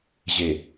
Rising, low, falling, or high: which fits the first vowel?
low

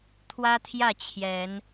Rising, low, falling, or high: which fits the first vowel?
high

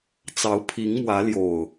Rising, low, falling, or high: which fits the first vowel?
rising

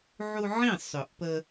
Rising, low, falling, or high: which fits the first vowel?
high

